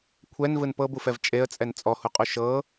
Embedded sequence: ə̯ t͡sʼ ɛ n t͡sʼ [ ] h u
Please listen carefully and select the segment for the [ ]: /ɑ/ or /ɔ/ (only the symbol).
ɔ